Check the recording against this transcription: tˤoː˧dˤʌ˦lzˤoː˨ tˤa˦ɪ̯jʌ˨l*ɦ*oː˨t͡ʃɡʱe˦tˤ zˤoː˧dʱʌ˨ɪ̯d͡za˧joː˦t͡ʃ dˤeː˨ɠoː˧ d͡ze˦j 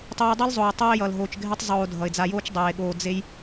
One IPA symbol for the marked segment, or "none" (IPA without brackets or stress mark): ɦ